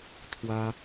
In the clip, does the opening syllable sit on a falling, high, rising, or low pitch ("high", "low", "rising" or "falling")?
high